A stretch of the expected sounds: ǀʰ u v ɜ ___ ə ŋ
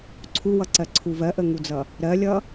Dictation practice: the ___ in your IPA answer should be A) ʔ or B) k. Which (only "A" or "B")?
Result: A